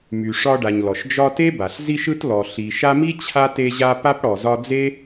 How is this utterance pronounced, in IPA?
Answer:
my˨ ʂɒ˦ɖa˨ɲlɔ˩ʃ d͡ʒɒ˦te˥ba˩ɬ zi˦ʃɯ˦t lɔ˨ɬi˨ ʃa˦mi˥ t͡ɕʰa˥ te˦ʑa˦ pa˥pɽɔ˩zɒ˦ d͡ze˥

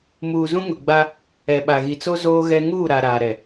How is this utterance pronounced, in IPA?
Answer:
muː˨zũ˦ ŋʊ˨ɡ͡ba˦ | ɛ˨ɓa˨ɣi˨t͡so˦ zoː˦ɣɛ˦ ŋuː˦˨ɾa˨ ɾaː˨ɾɛ˨

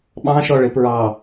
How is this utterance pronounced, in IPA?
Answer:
ɓɑ̃ʃɔ ɭɪpɹɑ

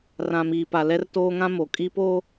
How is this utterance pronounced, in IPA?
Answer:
rã˨miː˨pa˨ lɛ˦rtoː˦ŋã˦ mo˨kʼi˦ po˦

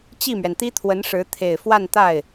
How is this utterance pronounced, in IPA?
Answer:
t͡ɕi˥˩mɥɛ˩nt̪i˥ t̪ʰwə˧˥nʂɻ̩˧˥ t̪ʰe˨˩ɪ̯fwa˥˧nt̪a˥˩ɪ̯

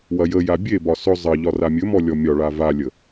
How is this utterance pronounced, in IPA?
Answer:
wɐjəja bʲebɒ sɵ zˤɐʎɒ ramʲɵmɔ lʲɔmʲɒɭa valʲə

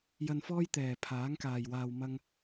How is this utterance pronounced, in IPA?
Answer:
jɐ˧nfɔː˥j t̪ɛː˨˩pʰaː˨˥ŋkaː˨˩jwaː˨w mɐ˥ŋ

